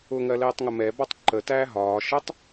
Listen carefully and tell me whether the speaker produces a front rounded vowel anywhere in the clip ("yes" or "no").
no